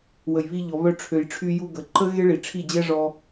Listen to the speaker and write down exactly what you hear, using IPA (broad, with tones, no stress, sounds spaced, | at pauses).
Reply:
w ə˨ j β i˧ ʎ ɔ˨ β œ˧ ʈ͡ʂʰ ø˨ j ʈ͡ʂʰ y˧ j u˧ ɡ ə˨ ǃ ə˦ ɣ e˦ ɭ i˨ ʈ͡ʂʰ i˦˨ d͡ʑ ɛ˦ ʐ ɔ˧